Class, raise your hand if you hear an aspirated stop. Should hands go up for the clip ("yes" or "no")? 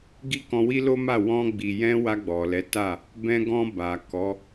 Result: no